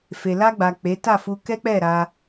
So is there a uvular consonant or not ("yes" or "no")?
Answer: no